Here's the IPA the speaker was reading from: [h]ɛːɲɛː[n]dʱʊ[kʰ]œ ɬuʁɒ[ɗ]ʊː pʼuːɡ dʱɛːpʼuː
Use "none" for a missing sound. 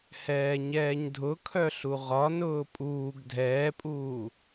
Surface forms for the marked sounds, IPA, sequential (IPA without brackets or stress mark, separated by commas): h, ɲ, kʰ, n